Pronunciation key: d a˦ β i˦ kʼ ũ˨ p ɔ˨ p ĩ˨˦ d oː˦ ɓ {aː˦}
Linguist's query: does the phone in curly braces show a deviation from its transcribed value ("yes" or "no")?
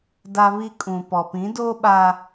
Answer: no